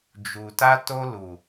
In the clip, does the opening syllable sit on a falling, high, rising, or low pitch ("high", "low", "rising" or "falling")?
low